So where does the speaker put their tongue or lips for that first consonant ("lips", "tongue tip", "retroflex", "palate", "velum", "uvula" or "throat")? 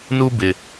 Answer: tongue tip